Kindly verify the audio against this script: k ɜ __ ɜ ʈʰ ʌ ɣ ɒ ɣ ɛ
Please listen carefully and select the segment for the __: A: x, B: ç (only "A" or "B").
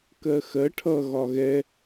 A